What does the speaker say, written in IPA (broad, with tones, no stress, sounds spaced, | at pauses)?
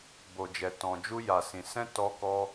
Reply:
b o˧ d͡ʒ ɛ˧ t ɔ̃˧ d͡ʒ u˦ j a˧ s ĩ˧ s ɛ̃˦ t ɔ˦ k ɔ˦